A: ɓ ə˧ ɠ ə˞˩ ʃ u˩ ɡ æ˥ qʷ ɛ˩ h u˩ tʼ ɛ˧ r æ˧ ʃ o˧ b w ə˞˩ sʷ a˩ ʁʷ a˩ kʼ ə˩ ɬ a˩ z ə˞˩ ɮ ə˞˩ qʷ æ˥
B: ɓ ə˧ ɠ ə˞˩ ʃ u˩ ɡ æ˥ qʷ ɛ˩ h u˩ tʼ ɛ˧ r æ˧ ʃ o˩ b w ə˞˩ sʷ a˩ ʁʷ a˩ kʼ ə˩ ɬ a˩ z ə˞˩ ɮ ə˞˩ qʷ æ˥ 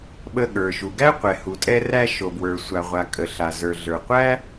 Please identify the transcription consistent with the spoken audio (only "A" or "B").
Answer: B